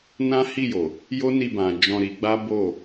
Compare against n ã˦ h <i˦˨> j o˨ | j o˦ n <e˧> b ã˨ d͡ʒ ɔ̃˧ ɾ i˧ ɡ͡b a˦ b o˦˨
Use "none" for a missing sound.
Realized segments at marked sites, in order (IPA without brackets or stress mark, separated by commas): i˦˨, i˧